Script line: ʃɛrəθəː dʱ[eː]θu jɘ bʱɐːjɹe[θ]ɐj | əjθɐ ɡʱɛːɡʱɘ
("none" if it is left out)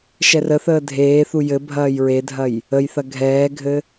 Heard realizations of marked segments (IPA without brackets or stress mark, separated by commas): eː, dʱ